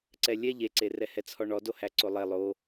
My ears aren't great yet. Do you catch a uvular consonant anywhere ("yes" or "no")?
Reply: no